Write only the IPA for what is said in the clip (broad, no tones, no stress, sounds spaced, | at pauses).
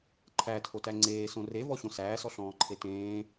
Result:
ǃʰ æ tʰ o t æ ŋ͡ǀ eː s õ r e v ɔ ɕ õ s æː s ɔ ɬ ɔ̃ː ǃʰ e t ẽː